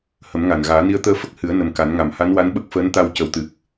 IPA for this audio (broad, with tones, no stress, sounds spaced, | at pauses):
h ə˨˩˦ m ŋ a˨˩ n ɣ aː˨˩˦ n i˧ ə̯ t̪ əː˧ f ə˦˥ k̚ h ɨ˨˩˦ ə̯ n ə˨˩ m k a˨˩˦ n ŋ a˨˩ m h a˧˥ n w a˧˥ n ɓ ə˦˥ k̚ f əː˧˥ n t̪ a˧ w c ə˨˩˦ w t̪ ɨ˨˩ k̚